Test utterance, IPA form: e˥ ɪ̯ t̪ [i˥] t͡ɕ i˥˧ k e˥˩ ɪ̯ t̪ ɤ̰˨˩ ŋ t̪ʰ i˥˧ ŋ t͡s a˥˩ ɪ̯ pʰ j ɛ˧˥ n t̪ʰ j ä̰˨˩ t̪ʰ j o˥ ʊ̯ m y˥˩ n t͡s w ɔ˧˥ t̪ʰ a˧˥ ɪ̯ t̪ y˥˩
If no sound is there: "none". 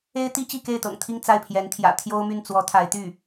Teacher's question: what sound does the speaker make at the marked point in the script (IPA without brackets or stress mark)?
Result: i˥